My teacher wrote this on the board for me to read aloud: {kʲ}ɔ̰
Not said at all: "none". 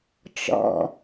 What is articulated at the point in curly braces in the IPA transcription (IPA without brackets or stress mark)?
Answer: t͡ʃ